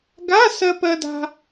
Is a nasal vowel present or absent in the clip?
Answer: absent